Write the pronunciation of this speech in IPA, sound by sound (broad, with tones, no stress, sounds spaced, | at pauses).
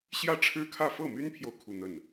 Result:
ɕ j ä˥˩ ʈ͡ʂʰ ɻ̩˥ kʰ ä˥˧ f ɤ˥˩ m y˥ n pʰ j o˨ ʊ̯ kʰ u˥˧ n̪ ə˥˩ n